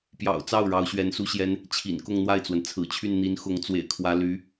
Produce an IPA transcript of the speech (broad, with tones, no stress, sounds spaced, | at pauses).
p j ɑ̰˨˩ ʊ̯ t͡s ɑ˥˩ ʊ̯ ɻ ɑ˧˥ ʊ̯ ɕ ɥ ɛ˧˥ n s u˥ ɕ j ɛ˥ n | t͡ɕʰ ḭ˨˩ n k ʊ˥˧ ŋ n̪ w a˥˩ ɪ̯ t͡s w ə˩ n t͡sʰ ɹ̩˨˩ t͡ɕʰ y˥˩ n n̪ i˧˥ n x ʊ˧˥ ŋ t͡s w ḛ˨˩ ɪ̯ kʰ w ä˧˥ l y˧˥